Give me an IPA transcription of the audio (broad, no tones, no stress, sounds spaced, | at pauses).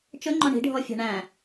t͡ʃ ɵ ŋ͡ǃ ɔ̃ ɳ i̤ ɖʱ ɔ fʲ æ̤ ɳ æ̃